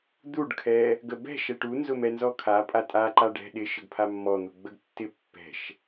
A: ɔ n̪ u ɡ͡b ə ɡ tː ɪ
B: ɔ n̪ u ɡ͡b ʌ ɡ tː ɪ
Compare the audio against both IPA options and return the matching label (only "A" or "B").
A